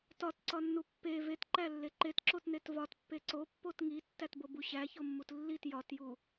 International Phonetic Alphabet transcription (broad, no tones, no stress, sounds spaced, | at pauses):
t ɒ t ǀ ɒ nː u pː e v e t ǃ æ lː e ǃ e t ǁ o t n e t v ɒ t pː e ǀ o pː o t ŋ i tː æ t b o b u ɕ æ ç o mː u t lː i t j ɒ t j u